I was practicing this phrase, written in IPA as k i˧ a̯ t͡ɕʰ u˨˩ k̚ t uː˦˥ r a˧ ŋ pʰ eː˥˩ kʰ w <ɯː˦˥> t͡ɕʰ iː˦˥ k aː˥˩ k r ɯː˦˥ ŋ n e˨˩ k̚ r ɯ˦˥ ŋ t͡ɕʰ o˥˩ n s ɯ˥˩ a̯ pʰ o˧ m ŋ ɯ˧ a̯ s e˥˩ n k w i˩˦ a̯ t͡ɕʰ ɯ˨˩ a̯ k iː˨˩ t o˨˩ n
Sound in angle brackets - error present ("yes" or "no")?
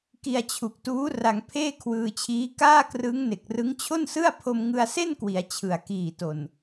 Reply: yes